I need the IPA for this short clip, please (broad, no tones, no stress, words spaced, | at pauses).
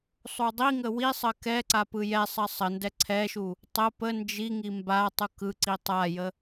sˤudˤiŋə wisˤə kɛǀa pɯjɛsˤɜ sˤəndɛ ǀʰɛʃu | tˤə pə nd͡ʒiŋi mba tˤukɯǀi tˤajə